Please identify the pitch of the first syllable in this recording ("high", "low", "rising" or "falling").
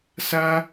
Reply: high